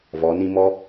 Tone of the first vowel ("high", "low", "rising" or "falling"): rising